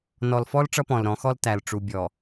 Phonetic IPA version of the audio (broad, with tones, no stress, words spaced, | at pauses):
nɔ˨lfɔ˦l ʈ͡ʂʌ˦pɔ̃˨lɾɔ̃˨˦xɔ˦l tæ˨lʈ͡ʂu˨bʲɔ˨